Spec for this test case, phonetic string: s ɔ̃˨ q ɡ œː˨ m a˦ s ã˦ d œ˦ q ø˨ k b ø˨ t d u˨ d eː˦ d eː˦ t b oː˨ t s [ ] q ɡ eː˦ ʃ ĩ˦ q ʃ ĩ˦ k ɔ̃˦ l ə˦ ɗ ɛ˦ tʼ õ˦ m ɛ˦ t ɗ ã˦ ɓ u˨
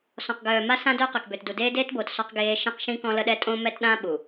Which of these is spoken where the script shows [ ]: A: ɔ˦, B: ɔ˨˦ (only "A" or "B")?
A